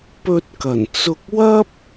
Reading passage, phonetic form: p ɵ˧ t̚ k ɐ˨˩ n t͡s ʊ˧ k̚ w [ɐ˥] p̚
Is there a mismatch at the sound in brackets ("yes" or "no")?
no